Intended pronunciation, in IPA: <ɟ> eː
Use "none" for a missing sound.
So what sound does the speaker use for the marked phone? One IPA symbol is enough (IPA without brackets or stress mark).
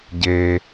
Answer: ɟ